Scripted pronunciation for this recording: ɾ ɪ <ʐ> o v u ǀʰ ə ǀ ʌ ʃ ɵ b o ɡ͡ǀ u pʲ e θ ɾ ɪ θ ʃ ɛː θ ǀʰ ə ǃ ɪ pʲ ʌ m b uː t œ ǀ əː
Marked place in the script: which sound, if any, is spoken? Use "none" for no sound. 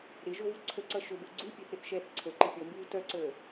ʒ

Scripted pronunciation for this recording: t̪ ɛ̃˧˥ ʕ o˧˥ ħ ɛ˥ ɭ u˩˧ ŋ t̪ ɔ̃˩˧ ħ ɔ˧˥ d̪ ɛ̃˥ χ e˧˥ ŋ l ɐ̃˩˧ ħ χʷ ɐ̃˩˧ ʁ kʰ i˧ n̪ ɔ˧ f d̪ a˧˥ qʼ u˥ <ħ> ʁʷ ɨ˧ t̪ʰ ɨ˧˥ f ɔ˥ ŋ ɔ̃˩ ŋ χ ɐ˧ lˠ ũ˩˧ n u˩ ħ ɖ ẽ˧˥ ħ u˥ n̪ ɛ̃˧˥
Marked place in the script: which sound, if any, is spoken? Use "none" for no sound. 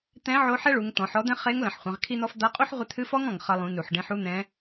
ħ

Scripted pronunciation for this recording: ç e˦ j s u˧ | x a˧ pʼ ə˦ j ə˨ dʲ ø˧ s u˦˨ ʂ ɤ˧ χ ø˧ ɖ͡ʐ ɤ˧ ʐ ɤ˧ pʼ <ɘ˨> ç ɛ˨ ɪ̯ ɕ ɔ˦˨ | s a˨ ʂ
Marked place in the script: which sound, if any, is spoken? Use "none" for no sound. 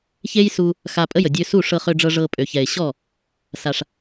ø˨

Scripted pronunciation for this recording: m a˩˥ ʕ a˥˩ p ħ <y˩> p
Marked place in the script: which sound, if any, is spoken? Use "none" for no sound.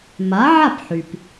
y˩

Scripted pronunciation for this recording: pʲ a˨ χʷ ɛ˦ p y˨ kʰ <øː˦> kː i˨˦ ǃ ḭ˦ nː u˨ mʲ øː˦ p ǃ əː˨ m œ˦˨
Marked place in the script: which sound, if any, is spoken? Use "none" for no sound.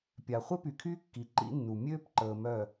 yː˦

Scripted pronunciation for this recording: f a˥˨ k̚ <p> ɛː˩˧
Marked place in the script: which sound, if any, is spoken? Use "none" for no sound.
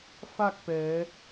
p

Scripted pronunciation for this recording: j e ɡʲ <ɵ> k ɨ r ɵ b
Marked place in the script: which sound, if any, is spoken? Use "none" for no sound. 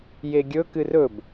ɵ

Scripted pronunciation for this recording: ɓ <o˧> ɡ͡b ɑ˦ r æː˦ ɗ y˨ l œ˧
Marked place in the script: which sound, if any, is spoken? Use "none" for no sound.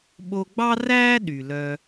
o˧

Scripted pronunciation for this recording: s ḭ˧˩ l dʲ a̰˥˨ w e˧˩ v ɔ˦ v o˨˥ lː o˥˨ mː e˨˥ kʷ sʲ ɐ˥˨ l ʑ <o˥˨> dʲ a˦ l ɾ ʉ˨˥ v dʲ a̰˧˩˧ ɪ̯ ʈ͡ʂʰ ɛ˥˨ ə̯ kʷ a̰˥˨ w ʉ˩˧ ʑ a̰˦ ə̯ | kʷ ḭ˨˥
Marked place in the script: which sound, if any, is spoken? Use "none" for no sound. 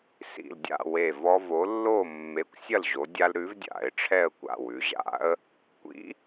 o˩˧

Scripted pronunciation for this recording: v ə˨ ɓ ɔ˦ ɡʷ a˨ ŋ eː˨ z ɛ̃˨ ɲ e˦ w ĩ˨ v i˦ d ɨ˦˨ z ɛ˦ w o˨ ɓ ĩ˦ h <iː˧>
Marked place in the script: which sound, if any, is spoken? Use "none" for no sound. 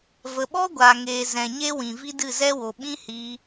iː˧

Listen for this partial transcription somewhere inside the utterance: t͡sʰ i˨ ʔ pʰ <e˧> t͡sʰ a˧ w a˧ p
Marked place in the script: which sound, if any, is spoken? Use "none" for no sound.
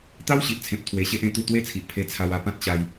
e˧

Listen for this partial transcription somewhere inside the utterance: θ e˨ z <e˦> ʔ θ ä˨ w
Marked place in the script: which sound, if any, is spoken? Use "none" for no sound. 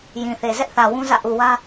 ɛ˦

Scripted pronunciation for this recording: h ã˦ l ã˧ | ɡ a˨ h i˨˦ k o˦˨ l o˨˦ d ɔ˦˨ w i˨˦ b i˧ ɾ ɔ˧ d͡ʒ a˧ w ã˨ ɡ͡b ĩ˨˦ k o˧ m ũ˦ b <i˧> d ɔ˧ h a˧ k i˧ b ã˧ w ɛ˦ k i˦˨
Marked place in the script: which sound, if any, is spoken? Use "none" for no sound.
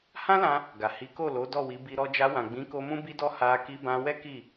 i˧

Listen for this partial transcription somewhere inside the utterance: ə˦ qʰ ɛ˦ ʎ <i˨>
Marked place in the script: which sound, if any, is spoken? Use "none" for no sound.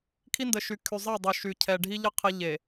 e˨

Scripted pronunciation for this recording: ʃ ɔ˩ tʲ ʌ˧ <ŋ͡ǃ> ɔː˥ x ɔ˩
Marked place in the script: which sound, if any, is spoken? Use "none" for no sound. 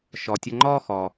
ŋ͡ǃ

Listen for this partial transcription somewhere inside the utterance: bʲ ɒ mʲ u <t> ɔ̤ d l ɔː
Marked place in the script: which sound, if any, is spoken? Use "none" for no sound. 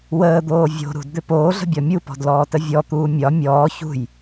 p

